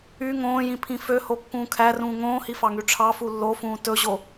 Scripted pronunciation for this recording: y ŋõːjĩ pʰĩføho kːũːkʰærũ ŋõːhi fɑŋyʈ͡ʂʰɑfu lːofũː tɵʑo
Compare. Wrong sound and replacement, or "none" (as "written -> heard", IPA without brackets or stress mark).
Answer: ũ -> ũː